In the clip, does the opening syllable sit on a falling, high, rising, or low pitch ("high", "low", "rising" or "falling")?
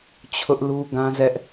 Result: high